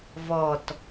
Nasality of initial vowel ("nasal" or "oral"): oral